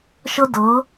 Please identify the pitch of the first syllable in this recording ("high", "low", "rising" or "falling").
high